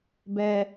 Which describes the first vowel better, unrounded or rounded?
unrounded